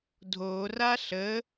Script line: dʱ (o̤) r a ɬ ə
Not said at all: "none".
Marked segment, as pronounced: o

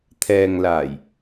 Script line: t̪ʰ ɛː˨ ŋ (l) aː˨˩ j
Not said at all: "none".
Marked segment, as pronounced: l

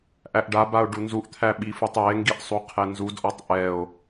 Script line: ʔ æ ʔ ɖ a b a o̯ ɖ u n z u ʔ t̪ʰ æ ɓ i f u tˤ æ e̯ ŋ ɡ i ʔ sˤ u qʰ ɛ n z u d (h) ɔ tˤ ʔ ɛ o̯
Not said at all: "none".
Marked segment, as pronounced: ʔ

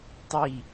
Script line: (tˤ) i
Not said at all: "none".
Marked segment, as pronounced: tˤ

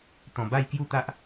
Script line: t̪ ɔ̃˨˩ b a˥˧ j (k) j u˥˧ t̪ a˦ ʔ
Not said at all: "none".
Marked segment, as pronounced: k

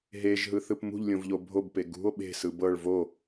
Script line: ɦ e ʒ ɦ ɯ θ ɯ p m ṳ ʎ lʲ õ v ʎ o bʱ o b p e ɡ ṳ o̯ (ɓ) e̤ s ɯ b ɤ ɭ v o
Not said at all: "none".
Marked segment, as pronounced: ɓ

